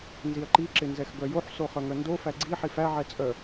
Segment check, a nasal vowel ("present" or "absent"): absent